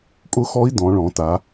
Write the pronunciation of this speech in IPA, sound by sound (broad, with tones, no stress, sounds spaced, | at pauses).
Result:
kʼ ʊ˦˥ x ɔ˦˥ i̯ d ɔ̃˩˧ ɭ ɔ̃˩˧ t a˩˧